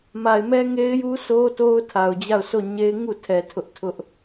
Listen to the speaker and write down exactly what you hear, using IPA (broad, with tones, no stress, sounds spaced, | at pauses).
m a˨ ɪ̯ m ɛ˦ ŋ e˦ ɪ̯ j u˦ s o˦ t o˦ ʊ̯ tʰ a˨ ʊ̯ d͡ʑ a˦˨ ʊ̯ s o˦˨ ɲ e˦ ɪ̯ ŋ u˦˨ tʰ ɛ˨ tʰ ʊ˦ ʔ tʰ ʊ˦ ʔ